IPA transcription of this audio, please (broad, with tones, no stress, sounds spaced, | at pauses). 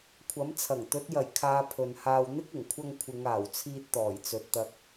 kʷʰ ɐ˨˥ m t͡sʰ ɐ˨˩ ŋ t̪ ɵ˨˥ t̚ j ɐ˨˩ j kʰ aː˨˧ pʰ ɵ˨ n h aː˧ w n̪ ɪ˥ k̚ ɪ˨˩ ŋ kʷʰ ɐ˧ ŋ kʷʰ ɪ˨˧ ŋ aː˨˩ w t͡sʰ iː˧ t̚ t̪ ɔː˨˩ j t͡s ɵ˨ t̚ t̪ ɐ˧ k̚